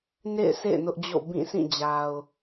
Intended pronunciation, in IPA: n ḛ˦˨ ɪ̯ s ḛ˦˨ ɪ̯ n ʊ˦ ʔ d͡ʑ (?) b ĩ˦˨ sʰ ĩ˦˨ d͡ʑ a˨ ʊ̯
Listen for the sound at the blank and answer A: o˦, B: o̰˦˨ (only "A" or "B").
B